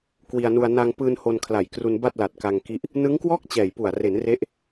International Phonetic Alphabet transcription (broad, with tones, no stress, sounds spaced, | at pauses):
k w i˧ a̯ n u˧ a̯ n a˧ ŋ p ɯː˧ n h o˧ n kʰ l a˨˩ j k r u˧ n b a˥˩ t̚ l a˨˩ t̚ k a˧ ŋ k i˦˥ ʔ | n ɯ˦˥ ŋ k w ɔː˥˩ k̚ t͡ɕ ɛː˨˩ j p u˨˩ a̯ r e˩˦ n r e˦˥ ʔ